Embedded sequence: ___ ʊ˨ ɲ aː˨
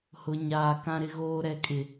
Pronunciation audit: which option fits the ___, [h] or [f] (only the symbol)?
h